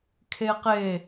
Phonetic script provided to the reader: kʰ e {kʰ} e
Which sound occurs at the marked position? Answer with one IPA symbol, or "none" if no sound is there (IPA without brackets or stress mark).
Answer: q